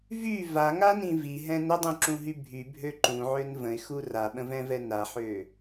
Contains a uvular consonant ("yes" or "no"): no